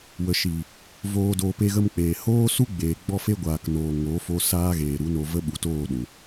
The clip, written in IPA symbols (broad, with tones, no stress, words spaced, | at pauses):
wə˨ʃiː˨ | voː˧doː˧ pe˧ɣə˧mk͡peː˨ hoː˦ su˦ɡ͡beː˨ ɡ͡bɔ˧fe˧ɡʷaː˨knoː˨ ŋoː˨˦fo˦ saː˦ɣeː˨ɾu˨˦no˧ və˦ɓu˨toː˦˨ ɗũ˨